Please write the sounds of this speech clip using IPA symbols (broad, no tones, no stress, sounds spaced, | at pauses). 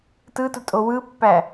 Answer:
t ɯ t u tʼ o w ɯ pː æ